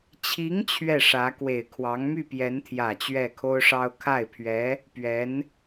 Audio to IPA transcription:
t͡ɕʰi˧˥ŋ t͡ɕʰɥɛ˥˩ʂä˧˥ kwe˨˩ɪ̯kʰwɑ˧˥ŋ my˥˩pjɛ˧˥nt̪ʰjä˨˩ t͡ɕɥɛ˥˩kʰo˥ʊ̯ʂɑ˥ʊ̯ kʰa˥˩ɪ̯pʰɥɛ˧˥ | pɥɛ˧˥n

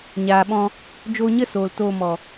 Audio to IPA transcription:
ɲaː˨ɓɔ̃˧ | d͡ʒoː˧ɲə˦ soː˨ltoː˧ mɔ˨

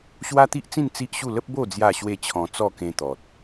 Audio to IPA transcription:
ɕwa˦t̪i˦ʔt͡sĩ˥˧n t͡si˦ʔɕu˥˧ lə˦p̚bo˥˧ d͡zja˥˧ɕwe˥˧t͡ɕʰɔ̃˧ t͡sɔ˥˧kẽ˧ t̪ɔ˨t̚

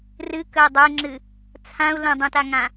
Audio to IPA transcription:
rɨkəi̯ dˤoi̯ŋ͡ǁɨ | t͡sʰãu̯ lə̃dˤũtaŋã

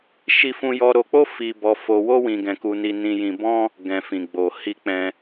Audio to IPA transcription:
ʃi˧fũ˧jɔ˧ ɾo˧k͡po˦ fi˧bɔ˧ fo˧wo˦ wĩ˧ɡɛ̃˧ku˧ ni˧nĩ˧jĩ˧ bɔ̃˦ | ɡɛ̃˨fĩ˨ɡ͡bo˨ hi˧k͡pɛ̃˧

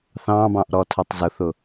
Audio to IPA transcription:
θɑ̃bɑ̃ʔɾɔtʰʊtˤ zʊθʊ

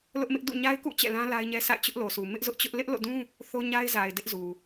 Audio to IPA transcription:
lʊ˦ʔmɪ˦ʔ dṵ˦˨ɲa˦ɪ̯kṵ˦˨ t͡ɕɛ̰˦˨lã˦ la˦ɪ̯ɲɛ˦ sʰa̰˦˨ɪ̯t͡ɕʊ˦ʔlo˨su˨ mɪ˦ʔzʊ˦ʔt͡ɕʊ˦ʔ lɪ˦ʔlo̰˦˨dũ˦ | θo˦ɲa˦ɪ̯za˨ɪ̯ dɪ˦ʔzu˨

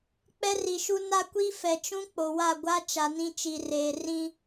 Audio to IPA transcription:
k͡pɛ˦ri˨ʃu˦ na˦kʷi˦fɛ˨t͡ʃũ˦ k͡po˨wa˦˨ɡʷa˦ t͡ʃa˨nĩ˦t͡ʃi˨reː˨ rĩ˦

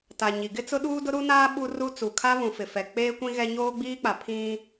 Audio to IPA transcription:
ta˨ ɲi˨ɡɪ˦ t͡sʊ˦ɗuː˦dʊ˦ ɾu˦naː˦ ɓu˦ru˦ t͡su˨kʰa˦ βũ˨fɪ˨fɛ˨ k͡peː˦kʷĩ˦ɣɛ˦ ɲoː˦ɡ͡biː˦k͡pa˨ pʰĩ˦

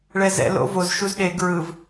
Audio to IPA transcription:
ɭɛzɛ̰ lo̰voz ʃuzɗe ɡɹɯv

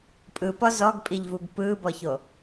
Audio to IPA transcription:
pʼɯpɔ zɔɡpʼiʎvuɡ pɯːbɔço

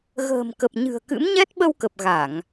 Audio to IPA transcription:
ɣə̤ː˨˩mkə˨˩p̚ ɲɨ̤˨˩ə̯kɨ̰˧˥m ɲɛ˦˥t̚ɓə˧wkə˨˩p̚ ɣa˧˩˨ŋ

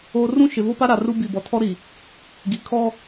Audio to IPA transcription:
oː˦ rũ˦ʃɪ˨vo˦pa˦ ɾa˨ru˦ bi˨bɔ˨ tʰɔ˦ɾi˨ | ɡi˨kʰɔ˦

